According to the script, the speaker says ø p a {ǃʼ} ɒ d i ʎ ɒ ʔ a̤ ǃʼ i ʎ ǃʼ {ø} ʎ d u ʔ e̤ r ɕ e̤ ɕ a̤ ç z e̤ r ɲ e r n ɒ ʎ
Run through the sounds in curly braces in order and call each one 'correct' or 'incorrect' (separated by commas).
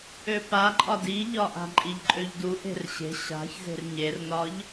correct, correct